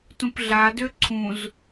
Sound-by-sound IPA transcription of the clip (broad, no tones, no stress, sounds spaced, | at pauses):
t ũ p ɮ a d ø ǀʰ ũ z